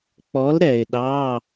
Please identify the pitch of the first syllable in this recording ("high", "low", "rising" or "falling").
rising